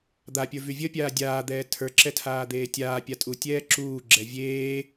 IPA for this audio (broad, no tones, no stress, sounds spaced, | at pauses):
d̪ a pʲ ə˞ v y vʲ ə pʲ aː dʲ aː d̪ ɛː tʰ ə˞ ǁ ɛ tʰ aː d̪ eː tʲ aː pʲ a tʼ u tʲ ɛː ǁ uː ɡ͡ǁ ɛ vʲ eː